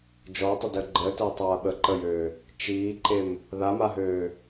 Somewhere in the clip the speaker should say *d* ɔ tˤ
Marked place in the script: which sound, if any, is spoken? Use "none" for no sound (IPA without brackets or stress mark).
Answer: d͡ʒ